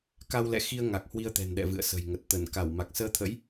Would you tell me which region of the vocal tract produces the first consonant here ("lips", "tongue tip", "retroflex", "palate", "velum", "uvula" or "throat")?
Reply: velum